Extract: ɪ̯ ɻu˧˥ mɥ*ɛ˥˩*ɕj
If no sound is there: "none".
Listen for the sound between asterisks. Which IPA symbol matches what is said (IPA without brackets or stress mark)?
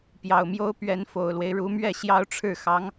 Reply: ɛ˥˩